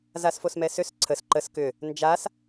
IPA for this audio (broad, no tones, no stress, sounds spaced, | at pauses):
z a s f o s m ɛ s ø s ǀʰ ə s ǃ ə s k ʏ | n d͡ʒ a s